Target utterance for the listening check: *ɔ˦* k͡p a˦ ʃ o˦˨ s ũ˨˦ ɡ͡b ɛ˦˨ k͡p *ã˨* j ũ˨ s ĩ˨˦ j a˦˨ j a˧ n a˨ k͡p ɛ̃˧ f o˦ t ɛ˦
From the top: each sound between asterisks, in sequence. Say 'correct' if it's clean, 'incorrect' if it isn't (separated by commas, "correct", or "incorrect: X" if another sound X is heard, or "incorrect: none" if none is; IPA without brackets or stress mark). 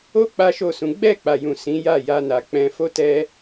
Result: incorrect: o˦, incorrect: a˨